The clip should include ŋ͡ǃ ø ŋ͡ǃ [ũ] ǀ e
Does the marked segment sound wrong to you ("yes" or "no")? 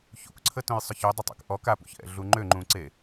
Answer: no